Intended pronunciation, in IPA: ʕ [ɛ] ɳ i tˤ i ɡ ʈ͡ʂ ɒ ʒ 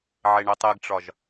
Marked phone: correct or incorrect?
incorrect